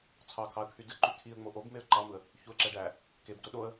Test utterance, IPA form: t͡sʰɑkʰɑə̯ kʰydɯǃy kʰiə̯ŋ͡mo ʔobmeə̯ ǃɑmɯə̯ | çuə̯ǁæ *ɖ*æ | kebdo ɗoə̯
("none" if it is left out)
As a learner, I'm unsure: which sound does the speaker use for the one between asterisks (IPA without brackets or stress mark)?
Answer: ɖ